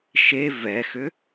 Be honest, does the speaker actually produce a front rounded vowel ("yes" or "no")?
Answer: yes